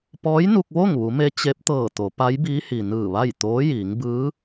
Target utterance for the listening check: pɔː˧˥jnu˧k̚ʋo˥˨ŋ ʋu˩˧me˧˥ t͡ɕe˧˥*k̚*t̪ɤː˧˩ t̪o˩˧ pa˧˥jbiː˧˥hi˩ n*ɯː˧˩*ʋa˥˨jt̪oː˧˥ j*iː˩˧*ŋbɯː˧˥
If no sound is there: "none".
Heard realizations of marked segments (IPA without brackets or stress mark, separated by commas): p̚, ɯː˧˩, iː˩˧